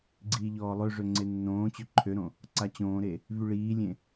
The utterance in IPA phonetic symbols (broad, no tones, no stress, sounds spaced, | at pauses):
ɡ͡ǀ iː ʎ ɔː lˠ ø ʐ ø ŋ͡ǀ e nː õː t͡ɕ ø ǃʰ ø ɾ õ | ǀ a t͡ɕ õː ɾ e | v y ɭ iː lʲ ẽ